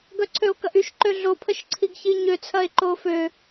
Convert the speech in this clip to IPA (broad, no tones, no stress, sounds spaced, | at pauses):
ɡ œ ǀʰ ø o̯ k ɐ ʔ y ʃ ǃ ø ɮ o pʰ ə ʃ ǀʰ i ɡ ç i ɲ ø t͡sʰ ɐ e̯ ǃ o f ø